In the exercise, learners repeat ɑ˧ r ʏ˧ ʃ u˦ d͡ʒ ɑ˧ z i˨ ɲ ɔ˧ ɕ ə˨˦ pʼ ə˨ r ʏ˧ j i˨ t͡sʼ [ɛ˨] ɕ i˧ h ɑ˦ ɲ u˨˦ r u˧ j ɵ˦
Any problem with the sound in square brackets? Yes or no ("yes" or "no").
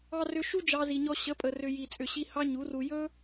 yes